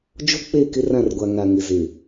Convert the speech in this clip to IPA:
d͡ʒ o˦ k͡p e˦˨ k ɪ˦ r ã˦˨ r ɡʷ a˨ ŋ a˨ ŋ ɪ˨ z e˨

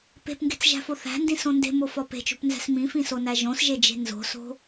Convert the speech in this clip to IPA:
p e̤ p ŋ ɡ e̤ t͡s ʒ æ̤ f o θ æ̤ n d ĩ s õ n d e̤ m o f ɒ p e̤ t͡ʃ o̤ p n z æ̤ s m ĩ f ĩ s o n æ ʒ õ s ʒ e d͡ʒ e̤ n z o̤ s o̤

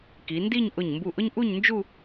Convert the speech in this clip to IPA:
k i˩˧ n d i˥˧ ɲ ʔ ʊ˧˩ ɲ m b u˧˩ ʔ ʊ˥ ɲ ʔ u˥˧ ɲ n d͡ʒ u˥˧

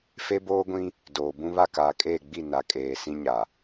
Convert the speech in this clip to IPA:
f e˦ b oː˦ ɡʷ ĩ˦ | d oː˨ b ũ˦ β a˦˨ k aː˨ kʼ eː˦˨ ɡ͡b i˦˨ n a˨ kʼ eː˨ s ĩ˦ ɲ a˨

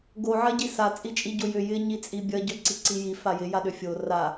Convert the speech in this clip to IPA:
ɡ o ʕ ɐ ɟ i s a t͡sʼ i t͡ʃʼ i ɟ o j ʏ j ɪ ɲ i t͡sʼ i bʲ ɐ ɟ œ ǀ i ǀ i j i f a j ɪ j a ɗ ʏ fʲ o r a

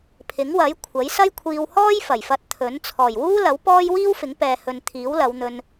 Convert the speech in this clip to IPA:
pʰ ɪ˨˥ ŋ w ɐ˨˥ j kʷʰ ɐ˨˥ j s ɐ˥ j kʷʰ iː˧ w h ɔː˥ j f ɐ˨˩ j f ɐ˧ t̚ t̪ʰ ɵ˨˥ n t͡sʰ ɔː˨˩ j w uː˥ l ɐ˨˥ w p ɔː˥ j w iː˥ w f ɪ˨˥ ŋ p ɛː˨ h ɵ˨ n t̪ʰ iː˨˥ w l ɐ˨˧ w n̪ ɵ˧ n

